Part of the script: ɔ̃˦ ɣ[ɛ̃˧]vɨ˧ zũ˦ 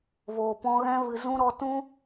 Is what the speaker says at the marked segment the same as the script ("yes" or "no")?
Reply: no